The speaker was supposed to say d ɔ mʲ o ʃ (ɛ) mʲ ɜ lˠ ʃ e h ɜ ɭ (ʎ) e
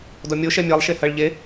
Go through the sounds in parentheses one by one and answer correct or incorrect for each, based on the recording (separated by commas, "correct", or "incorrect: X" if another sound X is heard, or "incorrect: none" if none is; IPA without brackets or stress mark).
correct, correct